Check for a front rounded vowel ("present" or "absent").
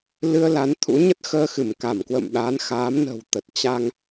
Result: absent